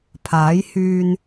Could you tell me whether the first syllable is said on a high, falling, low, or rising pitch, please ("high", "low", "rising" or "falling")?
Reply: rising